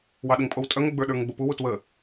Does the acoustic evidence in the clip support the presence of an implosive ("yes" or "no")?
yes